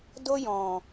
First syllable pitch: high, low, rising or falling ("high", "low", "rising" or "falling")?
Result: high